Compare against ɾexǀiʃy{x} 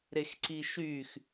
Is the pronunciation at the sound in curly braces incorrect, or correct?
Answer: correct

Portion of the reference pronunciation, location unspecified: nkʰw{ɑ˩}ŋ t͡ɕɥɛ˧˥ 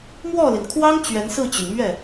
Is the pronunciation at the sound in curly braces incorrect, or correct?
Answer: incorrect: ɑ˥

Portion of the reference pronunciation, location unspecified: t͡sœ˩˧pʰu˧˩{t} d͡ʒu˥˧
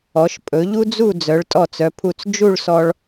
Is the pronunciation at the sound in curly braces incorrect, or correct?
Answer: incorrect: t͡s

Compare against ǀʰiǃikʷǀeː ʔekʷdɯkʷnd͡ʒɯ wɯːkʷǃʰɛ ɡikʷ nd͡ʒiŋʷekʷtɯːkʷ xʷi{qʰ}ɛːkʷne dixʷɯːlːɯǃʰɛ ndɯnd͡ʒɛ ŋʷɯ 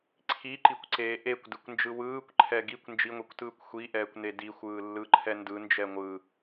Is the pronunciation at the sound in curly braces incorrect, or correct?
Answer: incorrect: ʔ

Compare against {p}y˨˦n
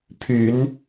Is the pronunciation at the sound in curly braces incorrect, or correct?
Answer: incorrect: pʰ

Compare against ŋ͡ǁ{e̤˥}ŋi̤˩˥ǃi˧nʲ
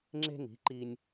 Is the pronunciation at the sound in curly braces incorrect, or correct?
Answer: correct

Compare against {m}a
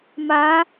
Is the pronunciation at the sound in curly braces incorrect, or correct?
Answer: correct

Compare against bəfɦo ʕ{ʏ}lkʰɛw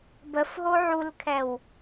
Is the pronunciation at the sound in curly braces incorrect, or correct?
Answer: incorrect: u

